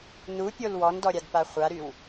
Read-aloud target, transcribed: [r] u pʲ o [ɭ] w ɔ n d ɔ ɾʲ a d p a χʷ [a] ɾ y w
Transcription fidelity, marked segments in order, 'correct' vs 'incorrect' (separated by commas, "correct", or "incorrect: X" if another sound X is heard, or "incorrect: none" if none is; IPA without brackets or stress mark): incorrect: n, incorrect: l, correct